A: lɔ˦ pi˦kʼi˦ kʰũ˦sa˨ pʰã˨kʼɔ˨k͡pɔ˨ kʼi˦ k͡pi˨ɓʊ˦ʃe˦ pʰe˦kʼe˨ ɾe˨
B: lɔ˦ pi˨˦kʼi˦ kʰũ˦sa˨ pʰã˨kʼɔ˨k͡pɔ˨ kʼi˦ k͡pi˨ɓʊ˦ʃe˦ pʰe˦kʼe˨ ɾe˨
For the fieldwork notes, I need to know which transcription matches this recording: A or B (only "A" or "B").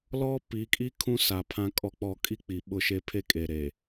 B